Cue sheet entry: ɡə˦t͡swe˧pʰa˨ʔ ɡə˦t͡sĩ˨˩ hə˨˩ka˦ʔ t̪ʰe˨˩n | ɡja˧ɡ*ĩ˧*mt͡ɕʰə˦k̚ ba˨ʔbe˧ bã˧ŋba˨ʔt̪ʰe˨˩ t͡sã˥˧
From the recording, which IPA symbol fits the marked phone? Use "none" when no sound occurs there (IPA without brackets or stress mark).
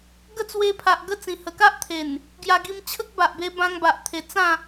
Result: i˧